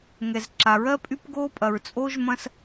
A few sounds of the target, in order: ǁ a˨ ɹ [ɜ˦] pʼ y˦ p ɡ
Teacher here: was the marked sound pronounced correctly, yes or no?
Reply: yes